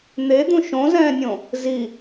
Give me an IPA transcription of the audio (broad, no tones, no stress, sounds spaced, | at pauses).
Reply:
n̪ e d̪ ũ ʃ õ z ɛ̃ː nʲ õ | z i